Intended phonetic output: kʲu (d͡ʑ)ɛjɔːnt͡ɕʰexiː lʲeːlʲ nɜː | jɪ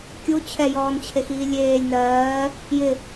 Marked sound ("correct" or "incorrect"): incorrect